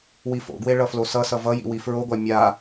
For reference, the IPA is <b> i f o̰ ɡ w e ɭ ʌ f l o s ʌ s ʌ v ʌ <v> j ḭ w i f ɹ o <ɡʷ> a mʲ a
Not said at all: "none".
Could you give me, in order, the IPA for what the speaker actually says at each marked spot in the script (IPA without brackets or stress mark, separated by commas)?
w, none, ɡʷ